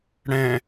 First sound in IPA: ɽ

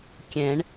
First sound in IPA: kʲ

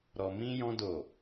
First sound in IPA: ɾ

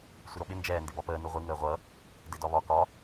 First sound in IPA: sʷ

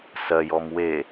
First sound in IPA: s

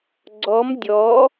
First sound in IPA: ɡ͡ǀ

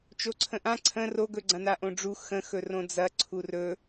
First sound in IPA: t͡ʃ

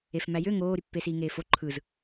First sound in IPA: e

